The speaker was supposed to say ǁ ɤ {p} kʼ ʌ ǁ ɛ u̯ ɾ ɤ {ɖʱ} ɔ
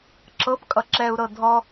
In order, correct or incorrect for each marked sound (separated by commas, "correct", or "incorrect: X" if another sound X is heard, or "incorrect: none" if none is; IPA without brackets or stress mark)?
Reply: correct, incorrect: dʱ